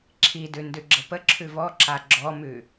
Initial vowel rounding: unrounded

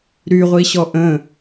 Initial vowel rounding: rounded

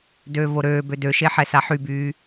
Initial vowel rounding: rounded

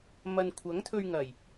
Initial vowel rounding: unrounded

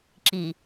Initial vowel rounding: unrounded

